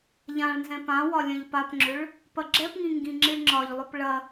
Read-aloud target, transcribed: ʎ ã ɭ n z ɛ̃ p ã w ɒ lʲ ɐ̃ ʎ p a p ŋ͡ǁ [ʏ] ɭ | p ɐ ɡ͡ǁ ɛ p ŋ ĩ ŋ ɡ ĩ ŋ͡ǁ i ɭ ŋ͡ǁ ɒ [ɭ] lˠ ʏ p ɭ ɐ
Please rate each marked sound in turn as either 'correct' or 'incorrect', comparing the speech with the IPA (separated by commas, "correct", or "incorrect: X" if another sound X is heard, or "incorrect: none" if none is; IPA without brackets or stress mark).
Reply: correct, incorrect: ʎ